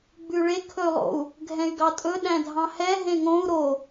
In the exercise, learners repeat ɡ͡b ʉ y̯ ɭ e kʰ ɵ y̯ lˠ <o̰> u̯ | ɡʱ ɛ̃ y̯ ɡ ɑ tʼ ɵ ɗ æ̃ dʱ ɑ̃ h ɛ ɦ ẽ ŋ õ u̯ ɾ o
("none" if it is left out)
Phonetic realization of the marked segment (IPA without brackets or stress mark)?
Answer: o̰